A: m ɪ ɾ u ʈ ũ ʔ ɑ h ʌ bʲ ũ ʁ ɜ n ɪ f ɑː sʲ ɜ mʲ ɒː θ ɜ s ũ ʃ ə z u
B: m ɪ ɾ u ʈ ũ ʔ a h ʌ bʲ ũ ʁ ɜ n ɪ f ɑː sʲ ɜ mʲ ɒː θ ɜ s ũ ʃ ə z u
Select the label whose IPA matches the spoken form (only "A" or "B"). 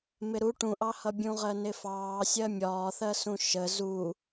A